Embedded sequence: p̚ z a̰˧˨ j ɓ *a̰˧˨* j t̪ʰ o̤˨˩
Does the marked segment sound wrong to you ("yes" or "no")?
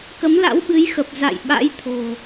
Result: yes